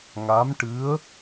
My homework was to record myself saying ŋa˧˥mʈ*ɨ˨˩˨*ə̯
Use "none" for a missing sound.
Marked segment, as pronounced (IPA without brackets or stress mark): ɨ˧˥